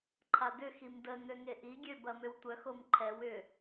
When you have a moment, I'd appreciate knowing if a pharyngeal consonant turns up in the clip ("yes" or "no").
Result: no